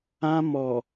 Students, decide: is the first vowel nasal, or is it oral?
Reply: nasal